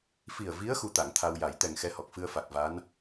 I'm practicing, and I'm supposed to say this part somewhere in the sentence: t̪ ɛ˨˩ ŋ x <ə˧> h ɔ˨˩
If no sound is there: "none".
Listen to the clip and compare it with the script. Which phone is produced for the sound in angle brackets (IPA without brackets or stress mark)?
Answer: ɛ˧